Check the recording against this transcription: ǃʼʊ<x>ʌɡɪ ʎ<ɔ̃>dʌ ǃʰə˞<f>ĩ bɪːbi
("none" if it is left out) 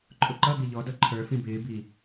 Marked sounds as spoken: ǃ, ɔ, f

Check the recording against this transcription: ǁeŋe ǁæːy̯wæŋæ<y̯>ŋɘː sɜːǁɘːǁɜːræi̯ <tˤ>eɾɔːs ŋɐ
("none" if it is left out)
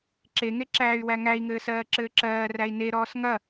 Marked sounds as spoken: i̯, n

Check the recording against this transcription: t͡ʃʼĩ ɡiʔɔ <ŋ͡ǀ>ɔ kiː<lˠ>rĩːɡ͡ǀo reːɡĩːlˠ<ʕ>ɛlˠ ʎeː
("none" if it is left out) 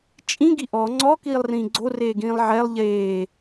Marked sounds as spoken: ŋ͡ǀ, lˠ, ʕ

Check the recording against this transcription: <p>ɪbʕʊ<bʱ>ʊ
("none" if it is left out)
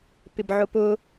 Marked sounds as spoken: p, p

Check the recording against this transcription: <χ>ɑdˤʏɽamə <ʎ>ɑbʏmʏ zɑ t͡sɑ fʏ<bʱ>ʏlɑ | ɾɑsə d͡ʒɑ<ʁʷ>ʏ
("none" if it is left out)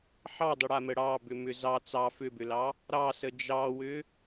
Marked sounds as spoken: ħ, ɽ, b, w

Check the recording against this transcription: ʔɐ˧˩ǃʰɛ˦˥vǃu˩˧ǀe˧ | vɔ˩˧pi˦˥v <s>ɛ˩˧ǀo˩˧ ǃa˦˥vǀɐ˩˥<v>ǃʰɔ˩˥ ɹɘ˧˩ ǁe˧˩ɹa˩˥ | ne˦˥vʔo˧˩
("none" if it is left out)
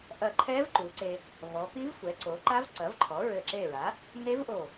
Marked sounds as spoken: sʷ, v

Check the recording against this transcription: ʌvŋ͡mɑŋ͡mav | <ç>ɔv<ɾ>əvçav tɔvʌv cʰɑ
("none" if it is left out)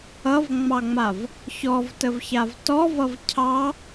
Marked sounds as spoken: ç, t

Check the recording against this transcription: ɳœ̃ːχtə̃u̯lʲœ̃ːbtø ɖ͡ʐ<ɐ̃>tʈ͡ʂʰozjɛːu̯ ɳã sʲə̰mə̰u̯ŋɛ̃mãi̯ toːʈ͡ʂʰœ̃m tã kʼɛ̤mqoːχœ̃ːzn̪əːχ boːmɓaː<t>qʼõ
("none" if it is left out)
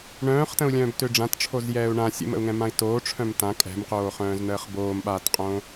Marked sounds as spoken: ã, t

